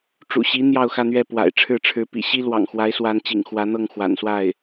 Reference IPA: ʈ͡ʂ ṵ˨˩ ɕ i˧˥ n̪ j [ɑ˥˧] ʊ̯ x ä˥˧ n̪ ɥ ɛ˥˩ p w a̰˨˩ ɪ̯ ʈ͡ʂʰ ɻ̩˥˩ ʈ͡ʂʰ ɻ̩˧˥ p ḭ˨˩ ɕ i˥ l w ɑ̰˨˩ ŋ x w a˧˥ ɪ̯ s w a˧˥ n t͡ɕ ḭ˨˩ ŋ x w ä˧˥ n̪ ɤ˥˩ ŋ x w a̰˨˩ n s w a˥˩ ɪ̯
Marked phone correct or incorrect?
correct